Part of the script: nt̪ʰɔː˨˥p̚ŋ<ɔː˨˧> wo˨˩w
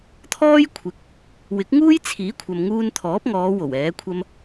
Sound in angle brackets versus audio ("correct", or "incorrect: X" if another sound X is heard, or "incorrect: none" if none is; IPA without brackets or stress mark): correct